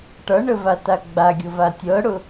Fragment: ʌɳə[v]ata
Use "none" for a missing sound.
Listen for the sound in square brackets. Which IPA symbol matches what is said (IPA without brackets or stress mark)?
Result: v